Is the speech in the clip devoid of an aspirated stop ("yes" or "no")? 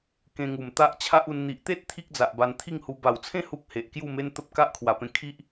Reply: no